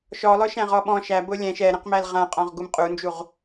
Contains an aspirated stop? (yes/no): no